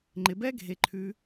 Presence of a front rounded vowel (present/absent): absent